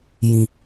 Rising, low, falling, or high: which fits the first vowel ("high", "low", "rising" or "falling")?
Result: low